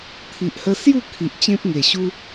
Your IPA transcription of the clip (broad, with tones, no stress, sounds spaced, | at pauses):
t̪ʰ i˨ ʔ h ə˧ s j u˥˧ kʰ i˨ ʔ t͡ɕ ẽ˦ p̚ ŋ e˨˩ ɕ u˦